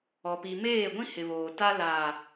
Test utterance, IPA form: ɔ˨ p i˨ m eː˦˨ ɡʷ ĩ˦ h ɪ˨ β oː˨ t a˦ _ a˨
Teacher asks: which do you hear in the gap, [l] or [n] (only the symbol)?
l